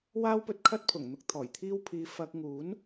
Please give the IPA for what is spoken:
waː˥wpɵ˧t̚kʰɐ˥t̚pʰʊ˨˩ŋ n̪ʊ˧k̚t̪ʰɔː˨˩jt̪ʰiː˥wpʰiː˧ fɐ˧k̚ ŋuː˨˥n

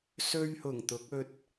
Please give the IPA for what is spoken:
sɵ˥ɥhʊ˨˩ŋt̪ʊ˨˥k̚ɵ˧t̚

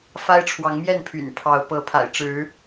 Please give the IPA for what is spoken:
fa˦ɪ̯ʈ͡ʂʰwɑ˨˦ŋmjɛ˥˨n pʰy̰˨˩npʰɑ˨˦ʊ̯ pɤ˨˦pʰa̰˨˩ɪ̯ʈ͡ʂɻ̩˨˦

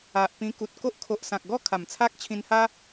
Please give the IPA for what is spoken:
a˨ʔ pĩ˧ku˨t̚ko˦ʔ kʰo˨ʔsã˨k̚ɡɔ˥˧ kʰa˨˩mt͡sʰa˦k̚t͡ɕʰĩ˧nha˦

